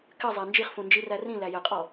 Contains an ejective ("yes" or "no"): yes